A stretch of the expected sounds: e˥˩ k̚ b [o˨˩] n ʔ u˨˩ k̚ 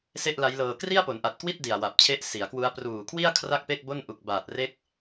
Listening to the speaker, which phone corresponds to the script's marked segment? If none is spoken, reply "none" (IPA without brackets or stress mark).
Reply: o˥˩